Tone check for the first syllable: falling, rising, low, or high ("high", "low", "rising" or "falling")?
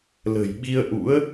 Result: low